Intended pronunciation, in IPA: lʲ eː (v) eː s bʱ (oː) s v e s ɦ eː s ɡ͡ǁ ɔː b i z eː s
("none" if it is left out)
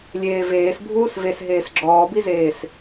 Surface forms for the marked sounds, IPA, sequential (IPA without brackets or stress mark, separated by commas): v, uː